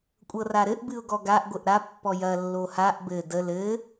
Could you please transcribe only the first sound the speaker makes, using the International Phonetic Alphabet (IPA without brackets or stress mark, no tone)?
kʷʼ